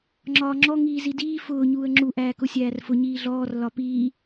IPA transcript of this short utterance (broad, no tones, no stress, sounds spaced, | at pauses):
ŋ͡ǁ ɒː ŋ͡ǁ ɔ ŋ iː z i d iː f ʊː ɲ uː ə̯ ŋ͡ǁ u ʔ æː k ʊ sʲ æː r f ʊ ɲ iː ɮ ɔː r l ɒ p iː